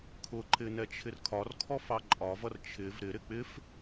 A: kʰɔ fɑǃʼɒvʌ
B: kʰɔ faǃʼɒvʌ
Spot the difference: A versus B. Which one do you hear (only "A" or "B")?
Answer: A